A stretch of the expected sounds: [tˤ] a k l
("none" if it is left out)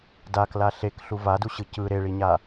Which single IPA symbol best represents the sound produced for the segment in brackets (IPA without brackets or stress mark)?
d